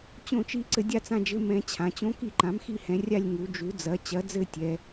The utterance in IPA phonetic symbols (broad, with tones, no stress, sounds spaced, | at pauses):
t͡ɕ õ˥˨ t͡ʃ i˦˥ ǀ ɘ˨˥ dʲ a˥˨ t͡s ã˥˨ d͡ʒ ɘ˧˥˧ m ɛ̃˨˥ t͡ɕʰ ã˩˧ t͡ɕ õ˦˥ k i˥˨ ǃ ã˨˥ m x i˥˨ h ɛ̃˩˧ rʲ a˥˨ lʲ ŋ u˩˧ d͡ʒ u˨˥ d͡z ɐ˨˥ t͡ɕ ɐ˨˥ d͡z ɘ˥˨ tʲ ɛ˩˧